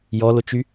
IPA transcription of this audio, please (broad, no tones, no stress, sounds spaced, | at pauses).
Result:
j ɔ l o t͡ʃ y